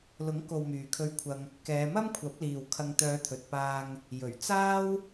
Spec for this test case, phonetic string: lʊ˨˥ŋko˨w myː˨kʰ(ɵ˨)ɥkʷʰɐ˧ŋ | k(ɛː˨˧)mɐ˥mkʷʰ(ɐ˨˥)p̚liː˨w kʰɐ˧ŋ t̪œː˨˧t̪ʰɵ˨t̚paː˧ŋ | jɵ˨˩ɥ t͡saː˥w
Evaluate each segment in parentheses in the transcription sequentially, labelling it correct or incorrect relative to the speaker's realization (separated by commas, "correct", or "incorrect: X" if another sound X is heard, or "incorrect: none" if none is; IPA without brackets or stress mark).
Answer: incorrect: ɵ˧, correct, correct